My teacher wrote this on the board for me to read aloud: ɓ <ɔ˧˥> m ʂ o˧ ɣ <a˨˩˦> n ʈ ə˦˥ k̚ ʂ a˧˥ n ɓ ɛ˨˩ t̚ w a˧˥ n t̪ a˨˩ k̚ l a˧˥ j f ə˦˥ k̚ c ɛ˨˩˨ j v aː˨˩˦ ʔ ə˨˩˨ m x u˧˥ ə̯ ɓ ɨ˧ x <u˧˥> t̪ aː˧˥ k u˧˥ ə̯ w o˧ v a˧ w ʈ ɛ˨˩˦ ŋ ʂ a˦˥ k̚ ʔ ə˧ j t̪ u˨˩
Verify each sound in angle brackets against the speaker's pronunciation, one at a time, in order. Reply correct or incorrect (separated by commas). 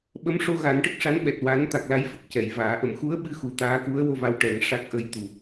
incorrect, correct, incorrect